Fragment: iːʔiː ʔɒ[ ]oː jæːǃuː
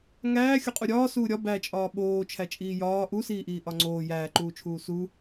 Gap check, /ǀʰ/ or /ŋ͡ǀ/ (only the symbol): ŋ͡ǀ